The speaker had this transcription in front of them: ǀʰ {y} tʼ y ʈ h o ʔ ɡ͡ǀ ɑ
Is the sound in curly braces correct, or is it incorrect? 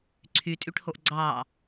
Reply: correct